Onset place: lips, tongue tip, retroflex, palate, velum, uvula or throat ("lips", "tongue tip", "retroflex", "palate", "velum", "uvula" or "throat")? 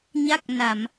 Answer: palate